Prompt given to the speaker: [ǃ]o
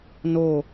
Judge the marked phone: incorrect: n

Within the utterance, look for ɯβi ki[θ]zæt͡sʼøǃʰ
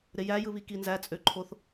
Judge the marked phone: incorrect: n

